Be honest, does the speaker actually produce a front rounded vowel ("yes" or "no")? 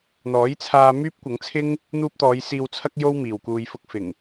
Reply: yes